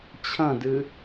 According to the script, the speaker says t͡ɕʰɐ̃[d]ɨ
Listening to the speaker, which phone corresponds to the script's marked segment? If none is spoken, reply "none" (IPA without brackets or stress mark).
d